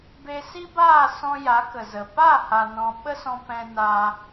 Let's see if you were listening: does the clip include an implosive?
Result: yes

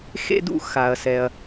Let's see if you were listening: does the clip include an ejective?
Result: no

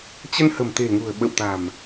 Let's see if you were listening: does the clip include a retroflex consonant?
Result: no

